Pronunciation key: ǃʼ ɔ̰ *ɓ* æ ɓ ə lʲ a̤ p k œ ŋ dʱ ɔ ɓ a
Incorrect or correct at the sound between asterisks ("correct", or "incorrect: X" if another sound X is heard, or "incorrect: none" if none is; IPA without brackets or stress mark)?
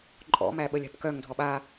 incorrect: m